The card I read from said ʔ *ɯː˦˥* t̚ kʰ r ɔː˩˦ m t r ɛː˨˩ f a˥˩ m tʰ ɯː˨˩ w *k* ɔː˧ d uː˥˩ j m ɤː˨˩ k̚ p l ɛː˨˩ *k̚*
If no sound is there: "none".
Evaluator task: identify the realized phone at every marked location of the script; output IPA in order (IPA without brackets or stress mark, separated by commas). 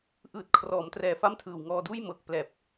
ɯː˨˩, ŋ, p̚